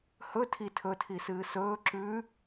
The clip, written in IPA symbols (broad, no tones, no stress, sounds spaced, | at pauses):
h ɵ tʰ i tʰ ɵ tʰ i s ɨː s ɵː ǁ ʉ